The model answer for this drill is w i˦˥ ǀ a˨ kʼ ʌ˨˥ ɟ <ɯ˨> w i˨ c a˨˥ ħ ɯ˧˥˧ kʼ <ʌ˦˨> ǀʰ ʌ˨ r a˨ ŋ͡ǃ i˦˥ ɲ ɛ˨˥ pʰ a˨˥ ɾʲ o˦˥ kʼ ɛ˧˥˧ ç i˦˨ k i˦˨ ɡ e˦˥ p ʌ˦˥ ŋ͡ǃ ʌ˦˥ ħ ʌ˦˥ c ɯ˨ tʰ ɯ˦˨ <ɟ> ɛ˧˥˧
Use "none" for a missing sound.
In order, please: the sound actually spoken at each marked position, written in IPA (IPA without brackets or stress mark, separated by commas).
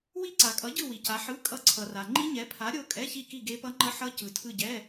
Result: ɯ˦˨, ʌ˦˨, ɟ